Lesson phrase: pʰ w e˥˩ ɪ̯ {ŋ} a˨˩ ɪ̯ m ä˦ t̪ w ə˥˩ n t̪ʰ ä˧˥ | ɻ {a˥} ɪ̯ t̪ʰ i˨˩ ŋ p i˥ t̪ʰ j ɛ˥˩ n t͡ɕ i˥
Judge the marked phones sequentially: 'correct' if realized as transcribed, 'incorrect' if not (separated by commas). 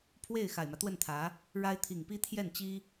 incorrect, correct